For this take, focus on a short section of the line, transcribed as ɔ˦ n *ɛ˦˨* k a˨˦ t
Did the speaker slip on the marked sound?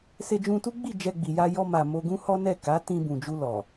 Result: no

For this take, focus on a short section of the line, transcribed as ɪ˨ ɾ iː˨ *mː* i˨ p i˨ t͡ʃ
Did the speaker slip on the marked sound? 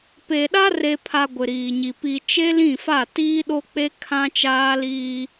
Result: yes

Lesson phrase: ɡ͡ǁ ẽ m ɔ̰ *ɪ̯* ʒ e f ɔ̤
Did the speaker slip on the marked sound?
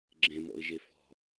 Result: no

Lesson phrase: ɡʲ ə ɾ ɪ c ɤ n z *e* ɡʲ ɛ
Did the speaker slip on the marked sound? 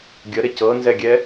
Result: yes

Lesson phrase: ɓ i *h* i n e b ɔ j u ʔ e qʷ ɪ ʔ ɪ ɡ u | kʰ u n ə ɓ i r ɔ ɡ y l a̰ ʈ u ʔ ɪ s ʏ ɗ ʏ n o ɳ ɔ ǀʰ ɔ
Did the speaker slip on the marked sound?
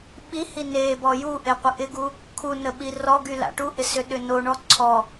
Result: no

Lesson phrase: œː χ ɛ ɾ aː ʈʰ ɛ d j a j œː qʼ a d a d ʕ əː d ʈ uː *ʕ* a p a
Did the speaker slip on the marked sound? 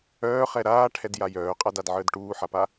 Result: yes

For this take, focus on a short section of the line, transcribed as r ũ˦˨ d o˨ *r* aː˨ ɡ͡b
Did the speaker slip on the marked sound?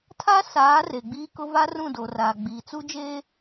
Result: no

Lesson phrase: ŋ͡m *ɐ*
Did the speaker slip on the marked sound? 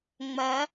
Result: no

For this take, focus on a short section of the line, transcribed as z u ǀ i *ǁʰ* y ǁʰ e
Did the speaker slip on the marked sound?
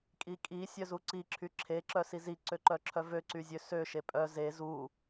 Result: no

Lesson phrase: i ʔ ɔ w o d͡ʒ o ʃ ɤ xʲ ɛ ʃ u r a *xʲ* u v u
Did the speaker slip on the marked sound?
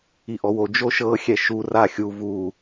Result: no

